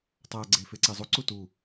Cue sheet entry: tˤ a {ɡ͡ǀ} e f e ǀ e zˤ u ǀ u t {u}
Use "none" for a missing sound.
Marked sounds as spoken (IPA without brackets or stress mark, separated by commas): ɡ͡ǀ, u